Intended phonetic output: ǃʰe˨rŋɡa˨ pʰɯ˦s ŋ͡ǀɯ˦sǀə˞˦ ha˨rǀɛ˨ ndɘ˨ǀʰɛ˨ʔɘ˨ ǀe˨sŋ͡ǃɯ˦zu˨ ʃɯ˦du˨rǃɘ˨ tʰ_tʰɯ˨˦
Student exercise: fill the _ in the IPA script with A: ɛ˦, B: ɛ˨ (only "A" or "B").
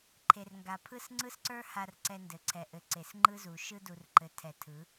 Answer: B